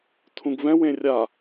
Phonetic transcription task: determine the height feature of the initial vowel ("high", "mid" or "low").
high